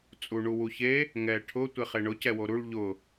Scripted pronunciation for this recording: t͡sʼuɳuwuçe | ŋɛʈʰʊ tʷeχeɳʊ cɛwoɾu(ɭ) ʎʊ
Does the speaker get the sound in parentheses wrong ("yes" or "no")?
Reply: no